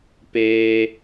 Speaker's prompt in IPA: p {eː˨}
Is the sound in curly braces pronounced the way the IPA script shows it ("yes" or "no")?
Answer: no